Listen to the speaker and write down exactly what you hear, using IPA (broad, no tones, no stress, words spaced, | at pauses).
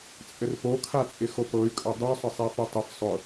t͡sʼɘrpokʰat͡sʼɪ xopɤy̯kʼɤ dˤusˤɘ sˤefutˤɘf sˤʊ